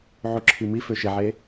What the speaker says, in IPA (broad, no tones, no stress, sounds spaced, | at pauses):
ʕ u ǁʰ i m i f ø ʃ e ʕ e